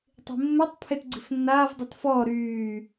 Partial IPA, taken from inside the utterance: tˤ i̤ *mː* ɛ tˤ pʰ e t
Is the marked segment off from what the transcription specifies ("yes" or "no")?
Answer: no